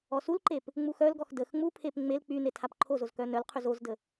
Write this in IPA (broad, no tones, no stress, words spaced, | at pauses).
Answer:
ɔsulǃep | ŋ͡muxœlɡɔx dəx ŋ͡mupʰep ŋ͡mel k͡py netʰapǃʰozoz kœnœlqʰyz ozdə